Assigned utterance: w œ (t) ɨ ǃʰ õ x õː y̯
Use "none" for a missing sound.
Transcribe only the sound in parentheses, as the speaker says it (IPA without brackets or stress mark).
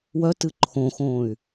t